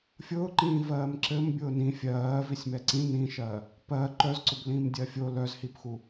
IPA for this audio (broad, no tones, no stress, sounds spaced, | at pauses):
fʲ ʊː ǃ ĩː v ɜː m ǁ ɘ m bʲ ʊː n ĩ fʲ ɜː v i sʲ m ɛ ǀ ĩ n ĩ ʃ ɜː | p ɜ ǃ œ z ǀ ʊ b l ĩː m dʲ ɜ fʲ o l œ z h i p x u